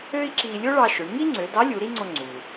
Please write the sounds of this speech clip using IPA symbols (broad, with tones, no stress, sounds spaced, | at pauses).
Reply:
ø˥ i̯ ǁ i˧ lʲ o˥ ɭ ɑ˧ ʃ ø˩˧ ɳ ŋ i˥ ŋ͡ǀ ø˩˧ d ɑ˧˥ lʲ u˩˧ ɾ i˥ ŋ͡ǀ o˧ ŋ͡ǀ u˩